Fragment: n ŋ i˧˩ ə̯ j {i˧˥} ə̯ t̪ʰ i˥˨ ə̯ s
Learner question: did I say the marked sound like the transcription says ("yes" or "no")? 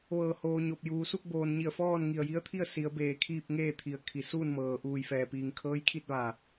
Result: yes